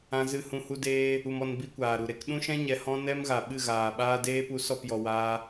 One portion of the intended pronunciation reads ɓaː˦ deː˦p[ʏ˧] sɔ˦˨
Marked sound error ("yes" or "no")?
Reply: yes